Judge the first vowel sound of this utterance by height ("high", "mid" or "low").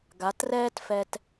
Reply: low